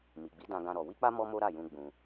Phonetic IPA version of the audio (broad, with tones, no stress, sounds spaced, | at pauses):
m i˨ ɡ͡b i˨˦ d ã˧ ɡ ã˦ ɾ ɔ˧ w i˦ k͡p a˦ m ɔ˦ m o˦ ɾ a˦˨ j ũ˧ ɡ͡b ũ˧